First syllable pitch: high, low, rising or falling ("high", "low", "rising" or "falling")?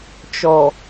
low